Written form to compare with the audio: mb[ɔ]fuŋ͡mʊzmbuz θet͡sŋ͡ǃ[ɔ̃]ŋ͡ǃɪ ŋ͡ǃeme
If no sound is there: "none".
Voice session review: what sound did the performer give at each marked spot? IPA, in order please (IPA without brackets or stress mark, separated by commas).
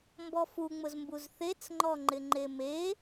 ɔ, ɔ